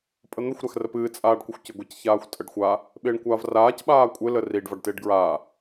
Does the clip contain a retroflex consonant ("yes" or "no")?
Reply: yes